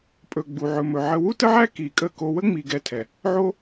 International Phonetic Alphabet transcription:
pʼ ɵ˨ ɡ͡b u˨ ʕ ɵ˨ m ɵ˨ ʕ ə˧ w u˦ t ə˦ ʕ æ˦ k i˨ kʼ ə˦˨ k o˧ w ə˦ ŋ͡m i˨ ɡ ɛ˧ tʰ ɛ˨ | ʕ o˦

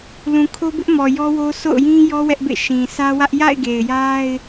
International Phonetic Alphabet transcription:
l ũ˨ kʰ o˦ b ɪ˦ ʔ m ɔ˨ j ɔ˦ w o˦ sʰ o̰˦˨ ʊ̯ j ĩ˦ j ɔ˦ w ɛ˦ ʔ b ḛ˦˨ ʃ ĩ˨ sʰ ä˦ w ä˦ ʔ j a̰˦˨ ɪ̯ ɡ e˨ ɪ̯ j a˦ ɪ̯

